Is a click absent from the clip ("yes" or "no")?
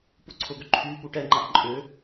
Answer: no